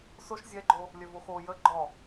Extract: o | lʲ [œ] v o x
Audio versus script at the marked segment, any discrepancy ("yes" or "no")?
no